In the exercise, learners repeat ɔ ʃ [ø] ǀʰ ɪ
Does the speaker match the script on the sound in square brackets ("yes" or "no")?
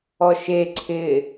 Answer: no